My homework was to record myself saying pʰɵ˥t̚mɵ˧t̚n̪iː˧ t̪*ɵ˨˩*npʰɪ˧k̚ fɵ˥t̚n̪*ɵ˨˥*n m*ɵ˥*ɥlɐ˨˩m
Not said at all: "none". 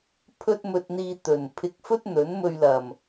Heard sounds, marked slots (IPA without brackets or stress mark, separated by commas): ɵ˨˩, ɵ˨˥, ɵ˧